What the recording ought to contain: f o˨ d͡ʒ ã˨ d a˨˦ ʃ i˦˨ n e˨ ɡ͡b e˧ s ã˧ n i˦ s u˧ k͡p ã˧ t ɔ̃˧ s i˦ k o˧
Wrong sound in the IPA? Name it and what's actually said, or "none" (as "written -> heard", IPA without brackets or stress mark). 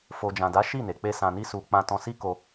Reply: ɡ͡b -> k͡p